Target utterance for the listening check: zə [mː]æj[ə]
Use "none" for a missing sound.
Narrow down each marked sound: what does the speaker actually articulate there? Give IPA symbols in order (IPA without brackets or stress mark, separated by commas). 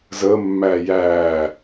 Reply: mː, æ